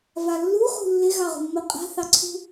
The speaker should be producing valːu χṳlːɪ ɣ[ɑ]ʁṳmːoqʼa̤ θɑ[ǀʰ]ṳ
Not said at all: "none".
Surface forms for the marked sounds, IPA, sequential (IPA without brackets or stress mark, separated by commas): ɑ, ǀʰ